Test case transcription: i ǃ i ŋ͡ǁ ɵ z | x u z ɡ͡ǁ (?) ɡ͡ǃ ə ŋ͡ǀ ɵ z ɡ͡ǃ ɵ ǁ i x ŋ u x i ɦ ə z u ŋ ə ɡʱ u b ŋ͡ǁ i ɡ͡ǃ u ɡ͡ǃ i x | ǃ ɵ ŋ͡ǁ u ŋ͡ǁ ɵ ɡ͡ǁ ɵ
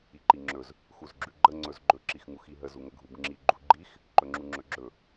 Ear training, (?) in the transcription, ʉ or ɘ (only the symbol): ʉ